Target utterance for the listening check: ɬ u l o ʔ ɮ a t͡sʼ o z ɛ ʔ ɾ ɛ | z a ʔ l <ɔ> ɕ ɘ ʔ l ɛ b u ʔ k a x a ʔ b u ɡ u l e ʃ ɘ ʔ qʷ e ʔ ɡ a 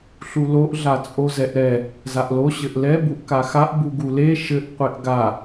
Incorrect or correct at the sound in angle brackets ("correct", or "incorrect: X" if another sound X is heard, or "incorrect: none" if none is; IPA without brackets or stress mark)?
incorrect: o